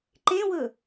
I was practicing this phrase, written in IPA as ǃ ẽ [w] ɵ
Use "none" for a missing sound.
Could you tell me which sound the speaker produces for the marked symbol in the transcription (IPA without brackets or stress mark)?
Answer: w